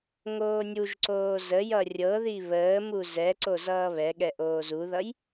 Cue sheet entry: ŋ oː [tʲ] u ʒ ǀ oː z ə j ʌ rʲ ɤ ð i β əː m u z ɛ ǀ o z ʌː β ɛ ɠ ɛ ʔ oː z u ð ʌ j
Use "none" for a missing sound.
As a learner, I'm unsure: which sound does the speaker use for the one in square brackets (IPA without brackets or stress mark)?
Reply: nʲ